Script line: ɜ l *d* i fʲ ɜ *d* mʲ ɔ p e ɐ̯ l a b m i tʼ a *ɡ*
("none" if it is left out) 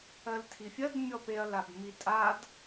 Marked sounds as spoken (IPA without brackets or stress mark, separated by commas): tʰ, d, d